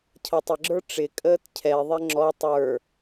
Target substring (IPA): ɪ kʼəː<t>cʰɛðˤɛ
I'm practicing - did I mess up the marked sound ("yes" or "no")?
no